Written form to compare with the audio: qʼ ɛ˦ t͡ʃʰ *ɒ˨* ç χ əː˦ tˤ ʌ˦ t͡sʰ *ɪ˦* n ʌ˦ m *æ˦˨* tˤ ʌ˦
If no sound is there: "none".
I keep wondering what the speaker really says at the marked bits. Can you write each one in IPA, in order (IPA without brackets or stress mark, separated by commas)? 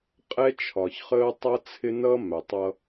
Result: ɒ˨, ɪ˦, æ˨